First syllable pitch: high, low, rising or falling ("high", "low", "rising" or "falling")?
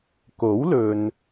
rising